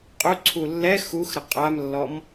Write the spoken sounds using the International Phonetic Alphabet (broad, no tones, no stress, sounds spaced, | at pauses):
qʼ u ǀʰ u lː ɛ x u x ɾ ə qʼ a m lː ɔ m